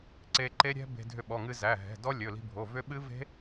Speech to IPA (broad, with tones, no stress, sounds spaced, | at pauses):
ǀ e˧ ǃ e˦˥ ɾʲ ɛ̤˦˥ b e̤˧ dʱ ʏ˧ ɓ ɔ˩˧˩ ŋ ɨ˧ z æ˩˧˩ ɦ ɛ̤˩˧˩ d ɔ˦˥ lʲ ɵ˩˧˩ l i̤˧ bʱ o˩˧˩ v ʏ˦˥ ɓ ɨ˦˥ v e̤˦˥